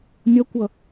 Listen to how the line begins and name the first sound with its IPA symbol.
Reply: nʲ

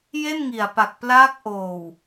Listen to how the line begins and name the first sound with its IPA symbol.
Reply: j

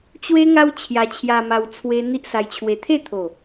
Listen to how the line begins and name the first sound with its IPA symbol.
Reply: t͡ɕ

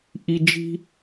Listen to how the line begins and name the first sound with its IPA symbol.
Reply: ʔ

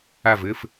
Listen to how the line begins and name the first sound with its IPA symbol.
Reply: a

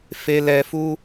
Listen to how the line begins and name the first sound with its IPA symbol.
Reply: f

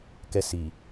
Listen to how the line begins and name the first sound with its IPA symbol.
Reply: k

